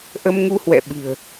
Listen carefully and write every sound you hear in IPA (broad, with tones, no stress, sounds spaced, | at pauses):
ʔ ə˧ m ŋ u˧ h w ɛ̰˧˨ ɓ ɨ̤˨˩ ə̯